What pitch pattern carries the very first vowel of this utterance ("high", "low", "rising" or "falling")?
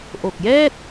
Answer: low